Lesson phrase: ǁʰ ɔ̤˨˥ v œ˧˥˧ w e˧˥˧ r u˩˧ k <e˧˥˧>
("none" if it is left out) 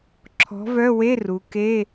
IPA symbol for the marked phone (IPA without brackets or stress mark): e˧˥˧